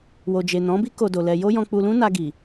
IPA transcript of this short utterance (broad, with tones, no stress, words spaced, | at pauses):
wo˨d͡ʒe˨ nɔ̃˨˦bi˦ ko˧do˨lɛ˧ jo˦jɔ̃˧ k͡pu˧ lũ˦na˧ɡi˨